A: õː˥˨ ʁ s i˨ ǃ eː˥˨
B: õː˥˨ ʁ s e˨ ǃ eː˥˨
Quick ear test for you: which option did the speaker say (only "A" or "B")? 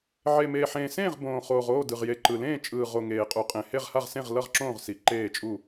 A